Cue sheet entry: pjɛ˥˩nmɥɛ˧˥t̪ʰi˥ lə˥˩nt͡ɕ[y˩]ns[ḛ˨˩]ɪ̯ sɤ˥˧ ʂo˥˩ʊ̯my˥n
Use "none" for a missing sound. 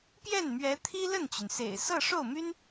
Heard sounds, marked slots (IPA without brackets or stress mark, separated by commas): y˩, ḛ˨˩